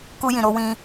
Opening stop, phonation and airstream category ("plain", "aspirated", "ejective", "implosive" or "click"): plain